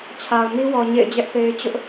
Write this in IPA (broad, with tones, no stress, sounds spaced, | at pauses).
t͡ɕʰ a˨ ʊ̯ n i˦ w ɔ˨ ɲ ḛ˦˨ ɪ̯ d͡ʑ ɛ˦ ʔ θ e˦ ɪ̯ t͡ɕ ʊ˦ ʔ